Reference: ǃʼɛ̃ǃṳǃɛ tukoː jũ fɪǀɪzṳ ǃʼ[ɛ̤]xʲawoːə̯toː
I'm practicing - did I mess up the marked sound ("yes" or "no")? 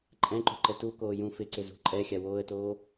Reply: yes